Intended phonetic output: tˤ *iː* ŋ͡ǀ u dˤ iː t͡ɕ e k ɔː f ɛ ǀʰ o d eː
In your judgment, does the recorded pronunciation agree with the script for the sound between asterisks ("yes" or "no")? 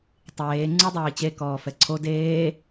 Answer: no